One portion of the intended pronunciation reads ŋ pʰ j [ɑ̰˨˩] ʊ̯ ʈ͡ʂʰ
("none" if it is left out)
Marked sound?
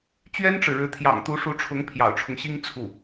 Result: ɑ̰˨˩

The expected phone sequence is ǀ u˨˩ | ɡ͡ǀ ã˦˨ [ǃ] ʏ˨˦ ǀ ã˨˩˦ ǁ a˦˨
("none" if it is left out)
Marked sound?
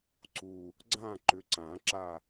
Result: ǃ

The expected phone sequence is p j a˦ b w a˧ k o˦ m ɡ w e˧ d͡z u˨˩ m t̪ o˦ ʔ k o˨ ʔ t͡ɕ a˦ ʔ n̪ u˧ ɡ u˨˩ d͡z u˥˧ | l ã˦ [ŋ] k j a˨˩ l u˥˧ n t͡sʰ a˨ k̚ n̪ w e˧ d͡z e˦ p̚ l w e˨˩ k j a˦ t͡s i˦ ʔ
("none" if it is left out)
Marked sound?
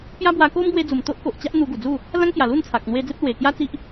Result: ŋ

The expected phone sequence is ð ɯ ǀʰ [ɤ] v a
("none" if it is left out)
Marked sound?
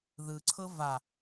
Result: ɤ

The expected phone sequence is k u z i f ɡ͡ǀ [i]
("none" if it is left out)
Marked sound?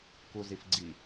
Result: i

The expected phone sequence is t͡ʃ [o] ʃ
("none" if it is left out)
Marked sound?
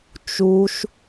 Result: u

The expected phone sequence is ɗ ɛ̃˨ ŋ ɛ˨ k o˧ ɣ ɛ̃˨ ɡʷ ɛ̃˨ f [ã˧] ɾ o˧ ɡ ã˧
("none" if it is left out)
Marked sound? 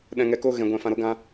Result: ã˧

